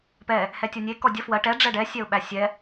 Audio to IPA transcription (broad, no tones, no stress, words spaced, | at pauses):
pɛ | hɛtʲɔnʲe kɔdʲə fwɜ ʈɛ ɖ͡ʐɛɖɛ sʲɛʊ̯ɓæsʲɛ